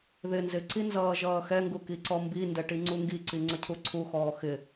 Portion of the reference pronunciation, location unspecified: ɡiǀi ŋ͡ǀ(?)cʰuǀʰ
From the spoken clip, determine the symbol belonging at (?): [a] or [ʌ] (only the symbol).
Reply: ʌ